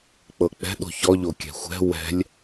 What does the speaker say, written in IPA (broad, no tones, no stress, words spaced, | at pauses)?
k͡pɤk͡pɛ̤ ɗo̤çɔʎo kʲɛ̤xʷɛ̤ wɛ̤lʲ